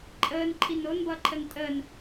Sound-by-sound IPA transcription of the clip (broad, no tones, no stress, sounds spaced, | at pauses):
ǃʼ əː n ǃʰ i n o n b ʌː ǃʰ ə n tʼ əː n